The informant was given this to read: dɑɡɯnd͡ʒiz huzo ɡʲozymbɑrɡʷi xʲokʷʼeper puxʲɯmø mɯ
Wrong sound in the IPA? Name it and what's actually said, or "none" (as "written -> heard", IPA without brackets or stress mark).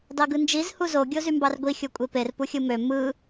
none